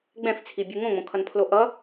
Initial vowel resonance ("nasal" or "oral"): nasal